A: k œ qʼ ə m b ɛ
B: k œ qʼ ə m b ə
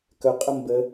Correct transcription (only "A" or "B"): B